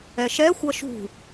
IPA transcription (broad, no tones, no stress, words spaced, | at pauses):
ɛʃɛ xʷʌʃṳ